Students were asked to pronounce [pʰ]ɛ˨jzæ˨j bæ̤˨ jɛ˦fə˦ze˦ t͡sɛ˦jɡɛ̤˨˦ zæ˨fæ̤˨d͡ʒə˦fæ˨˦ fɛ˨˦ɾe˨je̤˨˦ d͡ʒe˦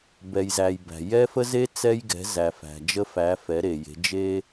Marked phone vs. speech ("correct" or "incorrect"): incorrect